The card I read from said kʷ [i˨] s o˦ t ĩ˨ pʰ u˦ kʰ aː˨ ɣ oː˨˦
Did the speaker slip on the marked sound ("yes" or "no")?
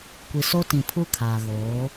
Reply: no